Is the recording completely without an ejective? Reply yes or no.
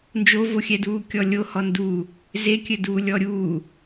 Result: yes